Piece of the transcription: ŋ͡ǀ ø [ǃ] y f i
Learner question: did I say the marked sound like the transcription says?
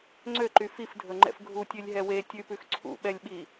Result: yes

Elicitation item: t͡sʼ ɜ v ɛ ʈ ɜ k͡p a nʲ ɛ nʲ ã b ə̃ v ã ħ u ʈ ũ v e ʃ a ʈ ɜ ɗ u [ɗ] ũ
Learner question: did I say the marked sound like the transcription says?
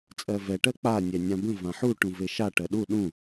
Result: yes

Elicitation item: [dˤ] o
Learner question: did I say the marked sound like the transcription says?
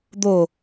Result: no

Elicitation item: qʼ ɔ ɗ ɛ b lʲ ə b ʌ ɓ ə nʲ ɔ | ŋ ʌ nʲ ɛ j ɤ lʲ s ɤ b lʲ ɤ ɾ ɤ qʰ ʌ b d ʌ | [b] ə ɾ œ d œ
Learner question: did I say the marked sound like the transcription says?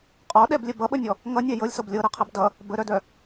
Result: yes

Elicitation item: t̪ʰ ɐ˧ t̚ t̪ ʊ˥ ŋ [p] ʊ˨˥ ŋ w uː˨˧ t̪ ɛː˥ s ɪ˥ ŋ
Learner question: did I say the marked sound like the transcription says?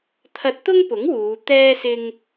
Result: yes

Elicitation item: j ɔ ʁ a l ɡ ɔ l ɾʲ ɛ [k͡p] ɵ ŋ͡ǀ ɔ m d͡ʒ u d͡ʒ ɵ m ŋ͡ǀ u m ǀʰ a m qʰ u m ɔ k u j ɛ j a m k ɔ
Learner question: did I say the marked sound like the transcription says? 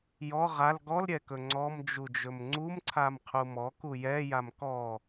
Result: no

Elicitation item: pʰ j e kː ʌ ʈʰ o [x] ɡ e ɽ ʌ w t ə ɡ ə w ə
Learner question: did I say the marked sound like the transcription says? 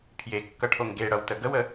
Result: no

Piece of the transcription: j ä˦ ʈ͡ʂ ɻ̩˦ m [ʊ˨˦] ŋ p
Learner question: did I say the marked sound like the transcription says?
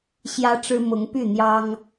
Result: yes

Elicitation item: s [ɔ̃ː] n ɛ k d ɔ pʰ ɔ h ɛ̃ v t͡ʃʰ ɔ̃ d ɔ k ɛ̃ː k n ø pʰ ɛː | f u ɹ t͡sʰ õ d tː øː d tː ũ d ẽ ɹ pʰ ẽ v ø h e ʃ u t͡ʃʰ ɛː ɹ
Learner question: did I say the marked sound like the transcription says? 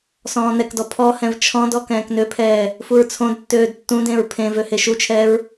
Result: yes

